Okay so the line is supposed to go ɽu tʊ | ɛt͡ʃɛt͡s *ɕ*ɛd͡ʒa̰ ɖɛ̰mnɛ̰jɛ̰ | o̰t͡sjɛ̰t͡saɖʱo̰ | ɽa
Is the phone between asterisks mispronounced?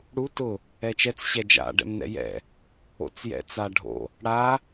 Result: no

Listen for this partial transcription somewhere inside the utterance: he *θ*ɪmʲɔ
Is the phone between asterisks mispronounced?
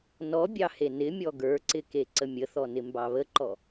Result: yes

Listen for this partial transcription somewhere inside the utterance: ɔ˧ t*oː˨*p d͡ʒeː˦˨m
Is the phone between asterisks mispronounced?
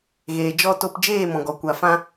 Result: yes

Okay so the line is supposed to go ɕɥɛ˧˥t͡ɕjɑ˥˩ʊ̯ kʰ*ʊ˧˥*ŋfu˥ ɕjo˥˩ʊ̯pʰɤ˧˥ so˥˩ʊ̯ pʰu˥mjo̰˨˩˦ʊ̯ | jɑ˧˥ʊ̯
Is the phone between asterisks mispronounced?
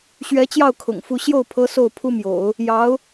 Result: yes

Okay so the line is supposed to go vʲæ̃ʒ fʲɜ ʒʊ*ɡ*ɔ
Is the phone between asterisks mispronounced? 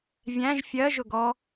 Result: no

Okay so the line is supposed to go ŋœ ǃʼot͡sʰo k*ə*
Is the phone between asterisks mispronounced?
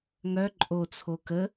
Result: no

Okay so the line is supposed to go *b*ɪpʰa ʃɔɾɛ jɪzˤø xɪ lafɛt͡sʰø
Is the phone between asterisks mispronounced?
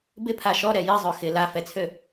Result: no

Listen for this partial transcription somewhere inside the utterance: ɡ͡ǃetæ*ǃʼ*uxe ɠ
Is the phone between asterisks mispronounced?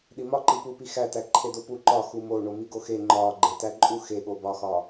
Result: no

